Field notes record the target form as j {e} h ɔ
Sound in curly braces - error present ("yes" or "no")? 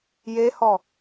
no